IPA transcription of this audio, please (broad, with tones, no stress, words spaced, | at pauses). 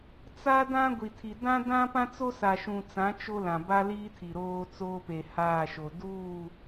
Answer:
t͡sa˦dã˦ɡʷi˨ tʰi˨ dã˦dã˦pã˦t͡so˦ sa˨ʃũ˨t͡sã˨˦ t͡ʃo˦lã˨ ba˦liː˦ tʰi˨ɾoː˦ t͡soː˦pe˨haː˦˨ʃo˨ duː˦˨